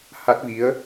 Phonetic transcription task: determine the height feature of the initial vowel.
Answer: low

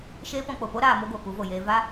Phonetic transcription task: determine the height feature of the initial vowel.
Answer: mid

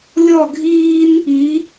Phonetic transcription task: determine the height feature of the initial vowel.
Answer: mid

